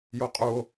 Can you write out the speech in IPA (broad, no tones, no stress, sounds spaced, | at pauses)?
j o qʼ u o̯